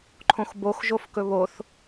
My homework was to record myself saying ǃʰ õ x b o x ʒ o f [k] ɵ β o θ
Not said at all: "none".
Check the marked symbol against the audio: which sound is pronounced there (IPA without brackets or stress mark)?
k